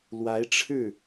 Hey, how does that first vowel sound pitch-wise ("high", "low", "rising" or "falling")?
rising